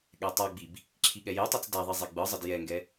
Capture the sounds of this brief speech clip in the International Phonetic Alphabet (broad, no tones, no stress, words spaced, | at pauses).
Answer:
ɠɛtˤaɡ͡bib | ǁʰiɠɛjetˤɛt͡s daðˤi zˤeɡ͡bɯzˤəd jɛŋɡɛ